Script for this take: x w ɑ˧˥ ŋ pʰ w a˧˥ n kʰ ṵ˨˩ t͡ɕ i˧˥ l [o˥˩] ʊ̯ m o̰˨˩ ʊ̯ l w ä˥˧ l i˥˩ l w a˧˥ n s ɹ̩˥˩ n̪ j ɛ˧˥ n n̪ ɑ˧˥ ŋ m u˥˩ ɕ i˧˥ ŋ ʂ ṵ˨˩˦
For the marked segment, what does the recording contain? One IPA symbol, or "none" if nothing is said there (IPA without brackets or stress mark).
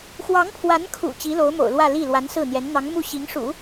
o˧˥